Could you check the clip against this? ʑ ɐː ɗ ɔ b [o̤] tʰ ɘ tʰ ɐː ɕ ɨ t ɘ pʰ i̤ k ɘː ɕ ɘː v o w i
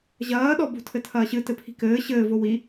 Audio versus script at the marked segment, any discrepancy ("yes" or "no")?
no